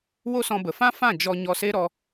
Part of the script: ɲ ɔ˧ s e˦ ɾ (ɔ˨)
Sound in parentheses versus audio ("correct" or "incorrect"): incorrect